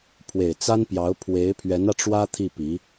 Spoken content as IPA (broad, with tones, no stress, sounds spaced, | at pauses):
pʰ w e˨˩ ɪ̯ t͡s a˥ n p j ɑ˧˥ ʊ̯ pʰ w e˧˥ ɪ̯ pʰ ɥ ɛ˧˥ n ä˧ ʈ͡ʂ w ä˥ t̪ʰ i˥˩ p i˧˥